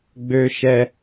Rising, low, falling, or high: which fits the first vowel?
high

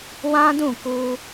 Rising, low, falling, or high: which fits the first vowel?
high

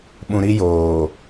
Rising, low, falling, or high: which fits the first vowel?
low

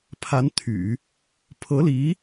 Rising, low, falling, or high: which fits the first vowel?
rising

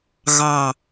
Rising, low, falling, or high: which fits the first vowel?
low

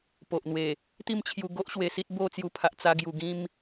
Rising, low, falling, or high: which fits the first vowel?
low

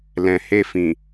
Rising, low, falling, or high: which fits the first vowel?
low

